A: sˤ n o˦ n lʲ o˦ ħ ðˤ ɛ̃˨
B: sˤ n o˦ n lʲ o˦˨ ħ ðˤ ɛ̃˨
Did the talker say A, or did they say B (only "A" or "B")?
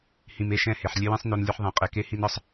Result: A